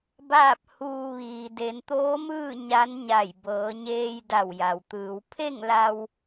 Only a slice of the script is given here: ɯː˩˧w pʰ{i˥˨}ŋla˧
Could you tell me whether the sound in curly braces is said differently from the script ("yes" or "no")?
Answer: yes